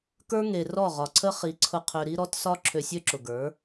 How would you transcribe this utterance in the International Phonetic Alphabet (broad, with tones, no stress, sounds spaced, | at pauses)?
k ə˞˦ ŋ e˨ r ɔ˦˨ ʁ ɒ˨ ǀʰ ə˦ χ i˨˦ ǀʰ ʊ˧ qʰ ø˧ ɾ i˦ ɾ ɔ˨˦ t s ɒ˦ ǁʰ ø˧ sʲ ø˦ ǁ ʊ˨ ɡ ə˞˨˦